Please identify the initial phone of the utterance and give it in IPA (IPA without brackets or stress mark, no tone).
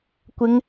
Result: kʷ